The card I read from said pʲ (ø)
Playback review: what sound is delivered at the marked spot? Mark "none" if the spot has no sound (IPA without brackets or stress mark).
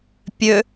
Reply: ø